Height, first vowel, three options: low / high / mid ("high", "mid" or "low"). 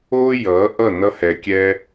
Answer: mid